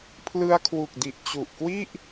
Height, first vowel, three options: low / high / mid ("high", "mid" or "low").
high